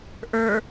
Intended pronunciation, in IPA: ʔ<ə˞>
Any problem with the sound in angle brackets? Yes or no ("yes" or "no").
no